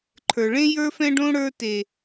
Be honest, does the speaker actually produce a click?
yes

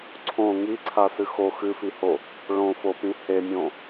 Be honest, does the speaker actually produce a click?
yes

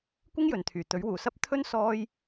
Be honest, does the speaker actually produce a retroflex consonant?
no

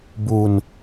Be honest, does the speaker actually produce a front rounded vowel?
no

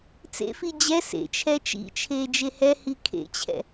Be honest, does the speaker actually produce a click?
no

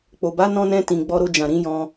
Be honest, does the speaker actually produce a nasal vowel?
yes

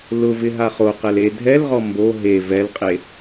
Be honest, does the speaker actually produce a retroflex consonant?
no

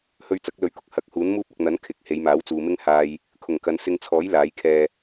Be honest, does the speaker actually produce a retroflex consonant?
no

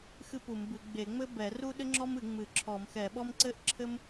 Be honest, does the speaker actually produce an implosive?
yes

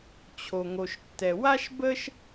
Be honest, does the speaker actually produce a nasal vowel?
no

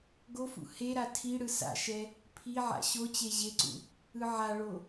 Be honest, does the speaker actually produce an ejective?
no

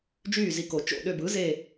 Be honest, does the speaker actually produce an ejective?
no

